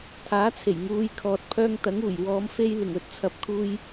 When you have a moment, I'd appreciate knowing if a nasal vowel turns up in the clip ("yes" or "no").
no